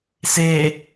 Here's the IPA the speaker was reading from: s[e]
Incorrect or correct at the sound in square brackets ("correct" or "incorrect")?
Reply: correct